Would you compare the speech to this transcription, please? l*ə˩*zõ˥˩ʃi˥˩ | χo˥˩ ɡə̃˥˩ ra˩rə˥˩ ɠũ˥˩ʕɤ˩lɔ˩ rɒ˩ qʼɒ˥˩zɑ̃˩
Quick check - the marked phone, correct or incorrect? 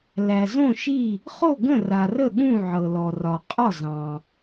incorrect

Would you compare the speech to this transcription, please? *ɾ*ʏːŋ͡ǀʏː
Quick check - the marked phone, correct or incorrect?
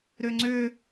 correct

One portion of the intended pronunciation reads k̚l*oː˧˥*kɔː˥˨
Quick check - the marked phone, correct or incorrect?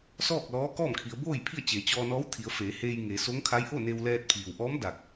incorrect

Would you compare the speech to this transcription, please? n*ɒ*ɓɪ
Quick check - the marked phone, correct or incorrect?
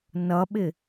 incorrect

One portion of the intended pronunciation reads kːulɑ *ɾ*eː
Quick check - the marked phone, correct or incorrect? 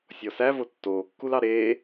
correct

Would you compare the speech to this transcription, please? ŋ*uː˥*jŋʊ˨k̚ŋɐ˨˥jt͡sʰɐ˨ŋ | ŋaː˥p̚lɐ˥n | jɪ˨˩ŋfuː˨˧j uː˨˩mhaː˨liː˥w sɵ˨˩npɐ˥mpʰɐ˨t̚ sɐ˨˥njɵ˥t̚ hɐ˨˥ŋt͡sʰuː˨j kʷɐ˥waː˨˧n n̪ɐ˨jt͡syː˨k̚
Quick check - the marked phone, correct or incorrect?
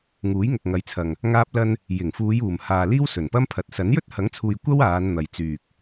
incorrect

